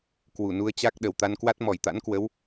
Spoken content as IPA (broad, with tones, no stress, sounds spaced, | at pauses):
k w u˧˩ n u˧ ə̯ t͡ɕ a˦˥ k̚ ɗ ə˨˩ w t̪ a˧ n k w a˦˥ t̚ m ɔ˧˩ j t̪ a̰˧˥ n k w ə˨˦ w